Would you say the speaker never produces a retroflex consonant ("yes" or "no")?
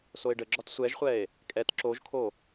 no